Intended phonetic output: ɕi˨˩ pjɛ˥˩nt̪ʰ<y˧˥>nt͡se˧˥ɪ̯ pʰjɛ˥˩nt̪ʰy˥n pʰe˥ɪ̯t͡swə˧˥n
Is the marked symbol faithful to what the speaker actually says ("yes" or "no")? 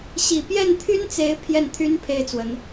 no